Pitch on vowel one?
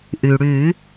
low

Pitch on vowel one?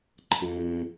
low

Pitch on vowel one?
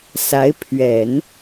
rising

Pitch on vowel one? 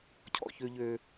high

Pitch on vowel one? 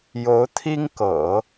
rising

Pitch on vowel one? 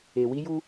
low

